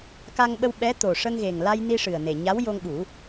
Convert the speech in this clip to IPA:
ka˧ŋɓə˧w ɓɛ˧˥t̪o˨˩ ʂə˧ŋɣe˨˩ŋla˧j ni˧ʂɨ˨˩ə̯ne˨˩ ɲa˧˥wjo˧ŋɓu˨˩˦

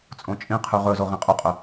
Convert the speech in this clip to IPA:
t͡sʼõt͡ʃʼĩqʰʉ ʁɵzo ʁĩqʼuqʼɵ

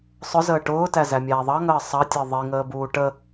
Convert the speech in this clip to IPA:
sˤʊzəː ʈʊːtæzæ mʲæːðˤɑ ŋəːsˤɑtʲəː ðˤiŋəːbuː ʈə

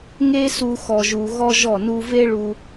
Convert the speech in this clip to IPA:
ŋe˦su˧ xɔ˨ʒu˨ɣɔ˧ ʒɔ˦˨nu˦ ve˦ɭu˧

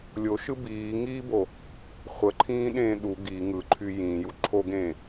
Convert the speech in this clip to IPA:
lʲoʃɯ biːŋiːbo | χʷəǃʰĩːɗẽː ɗu ɡi ŋɯǃʰy jĩːju ǃʰoɡẽː

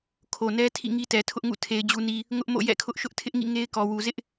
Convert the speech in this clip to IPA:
kʰo˨nɛ˦ tʰḭ˦˨ŋi˦tɛ˨ tʰʊ˦ʔŋṵ˦˨ tʰe˨ɪ̯d͡ʑu˨ni˨ | ŋʊ˦ʔmo̰˦˨ jɛ̰˦˨kʰʊ˦ʔʃʊ˦ʔ tʰɪ˦ʔŋḭ˦˨ ŋe˦ɪ̯kɔ˨wu˨ zɪ˦ʔ

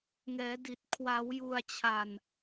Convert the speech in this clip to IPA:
ŋɛː˩˦di˨˩t̚ kʰwa˩˦wju˨˩a̯t͡ɕʰa˨˩n

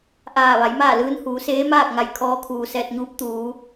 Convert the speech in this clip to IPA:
ʔaː˧˩ ʋa˩˧jmaː˥˨lɯː˧˥n huː˩˧seː˧˥maː˥˨k̚ŋa˧˩j kʰɔː˧kʰuː˩ sɛː˧t̚ɲuː˧˥p̚ t̪uː˩˧

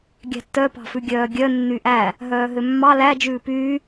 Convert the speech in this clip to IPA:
ɡʲæ̤tːœ pɑ̤fʉɡʲœːɡʲœ nːyʔæ | ɦœːɦømːɑ læ d͡ʒʉːpyː

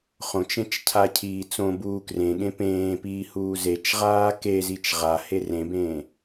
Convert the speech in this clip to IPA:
χõt͡ʃẽt͡ʃcʰacʰiː t͡sõbuː krẽɠẽ pẽːpiːhuː zet͡ʃʁaː kezit͡ʃ ʁahe rẽbẽː

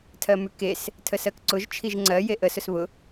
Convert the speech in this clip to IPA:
tʰɜmʉkes | tʰəsɜkǀʊʒ t͡ʃʰiʒŋ͡ǀɜ jeʔə sʊsβʊ

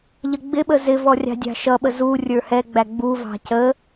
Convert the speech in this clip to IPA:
ʎəɡ͡bɪɓə zɪvɔ rʲɑ̤dʲɑ̤ʃʌɓə zu rʲə˞hɛɡ͡bæ ɡ͡buvɑ̤ cə

